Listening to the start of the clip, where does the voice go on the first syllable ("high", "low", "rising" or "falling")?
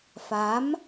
rising